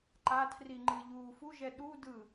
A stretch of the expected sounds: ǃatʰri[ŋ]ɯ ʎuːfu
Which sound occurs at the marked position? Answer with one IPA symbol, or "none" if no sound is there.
ŋ͡ǃ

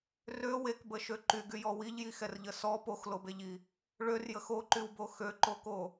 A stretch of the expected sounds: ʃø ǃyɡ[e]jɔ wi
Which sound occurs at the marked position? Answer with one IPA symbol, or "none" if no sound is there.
y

